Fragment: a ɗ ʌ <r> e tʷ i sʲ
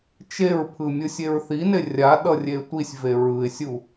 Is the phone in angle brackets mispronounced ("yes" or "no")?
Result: yes